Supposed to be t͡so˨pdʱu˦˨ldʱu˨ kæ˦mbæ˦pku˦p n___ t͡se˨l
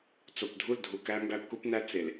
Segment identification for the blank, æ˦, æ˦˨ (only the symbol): æ˦